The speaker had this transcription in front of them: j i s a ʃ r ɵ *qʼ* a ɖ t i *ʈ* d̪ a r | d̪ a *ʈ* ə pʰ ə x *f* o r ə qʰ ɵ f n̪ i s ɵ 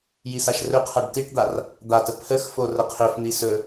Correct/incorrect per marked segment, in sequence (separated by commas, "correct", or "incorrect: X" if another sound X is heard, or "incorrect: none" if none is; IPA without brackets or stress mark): incorrect: qʰ, correct, incorrect: t, correct